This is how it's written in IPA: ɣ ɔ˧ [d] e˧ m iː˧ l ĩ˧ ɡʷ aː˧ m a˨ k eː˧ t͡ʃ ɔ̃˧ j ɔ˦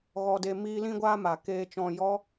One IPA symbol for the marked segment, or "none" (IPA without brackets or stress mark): d